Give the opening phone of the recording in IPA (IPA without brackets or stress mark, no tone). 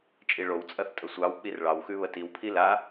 t͡ʃʼ